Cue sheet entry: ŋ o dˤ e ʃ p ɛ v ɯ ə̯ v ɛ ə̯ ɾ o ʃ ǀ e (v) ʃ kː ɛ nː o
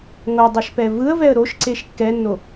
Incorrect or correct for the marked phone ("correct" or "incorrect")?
incorrect